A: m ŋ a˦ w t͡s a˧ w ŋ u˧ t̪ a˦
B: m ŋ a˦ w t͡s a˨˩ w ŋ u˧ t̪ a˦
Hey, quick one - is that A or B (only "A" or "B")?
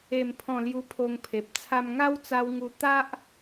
A